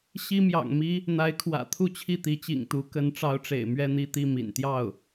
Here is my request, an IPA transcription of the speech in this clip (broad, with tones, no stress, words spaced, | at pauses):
ɕi˥mjɑ̰˨˩ŋmi˥ | n̪a˧˥ɪ̯kʰwä̰˨˩ t̪ʰu˥˧t͡ɕʰi˥˩t̪i˧˥ t͡ɕḭ˨˩ŋt̪u˧˥ kə˧˥nʈ͡ʂɑ˧˥ʊ̯ʈ͡ʂḛ˨˩ɪ̯ mɥɛ˥˧n̪i˥˧t̪i˥˩ mḭ˨˩nt̪jɑ˥˩ʊ̯